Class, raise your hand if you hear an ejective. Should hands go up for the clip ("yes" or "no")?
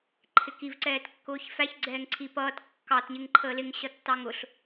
no